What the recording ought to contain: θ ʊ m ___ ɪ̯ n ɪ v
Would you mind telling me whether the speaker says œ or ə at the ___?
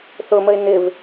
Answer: ə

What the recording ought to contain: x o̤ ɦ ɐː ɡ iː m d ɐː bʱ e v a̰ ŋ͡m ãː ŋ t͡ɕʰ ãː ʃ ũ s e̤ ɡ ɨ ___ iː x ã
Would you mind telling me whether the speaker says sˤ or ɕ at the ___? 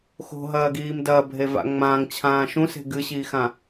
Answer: ɕ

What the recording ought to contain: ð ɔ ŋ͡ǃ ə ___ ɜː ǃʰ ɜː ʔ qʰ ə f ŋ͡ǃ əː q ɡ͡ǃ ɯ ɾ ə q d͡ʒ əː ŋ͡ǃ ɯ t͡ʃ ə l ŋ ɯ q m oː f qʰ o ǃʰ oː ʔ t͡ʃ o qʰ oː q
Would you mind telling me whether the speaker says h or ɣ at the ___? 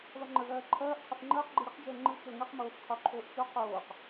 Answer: ɣ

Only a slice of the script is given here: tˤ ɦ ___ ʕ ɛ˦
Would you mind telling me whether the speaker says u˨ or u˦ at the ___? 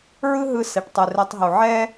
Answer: u˨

